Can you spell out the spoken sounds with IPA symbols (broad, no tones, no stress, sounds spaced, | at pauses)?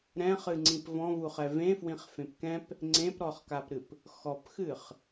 ɾ ɛ̃ χ ɨ ŋ͡ǀ ĩ p v ɔ̃ v u χ ɛ v ẽ f w ĩ χ f ẽ p k ɛ̃ p | ŋ͡ǀ ẽ p ɾ ɔ χ k a p ɾ ɨ p | x ɔ p x ɨ χ